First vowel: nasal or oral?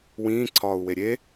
nasal